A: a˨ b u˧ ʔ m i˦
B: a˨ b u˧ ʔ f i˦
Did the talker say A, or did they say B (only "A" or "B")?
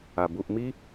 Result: A